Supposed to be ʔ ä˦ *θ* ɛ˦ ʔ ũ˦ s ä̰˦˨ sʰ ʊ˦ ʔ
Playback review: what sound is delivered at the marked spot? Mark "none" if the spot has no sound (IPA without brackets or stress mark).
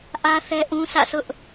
θ